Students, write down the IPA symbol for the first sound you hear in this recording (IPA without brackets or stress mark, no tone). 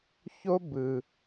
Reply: ç